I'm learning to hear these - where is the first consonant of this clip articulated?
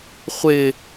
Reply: uvula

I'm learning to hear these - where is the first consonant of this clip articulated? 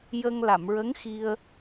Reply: palate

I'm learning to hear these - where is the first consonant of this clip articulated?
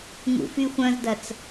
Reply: velum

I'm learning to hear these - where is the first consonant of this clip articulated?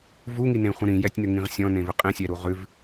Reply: lips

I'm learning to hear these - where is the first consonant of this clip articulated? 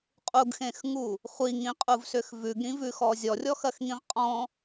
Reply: uvula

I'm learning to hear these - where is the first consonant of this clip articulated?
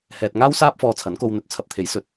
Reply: throat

